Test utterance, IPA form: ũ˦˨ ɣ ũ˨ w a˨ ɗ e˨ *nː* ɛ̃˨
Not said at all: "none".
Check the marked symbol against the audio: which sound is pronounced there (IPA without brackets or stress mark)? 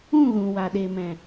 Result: m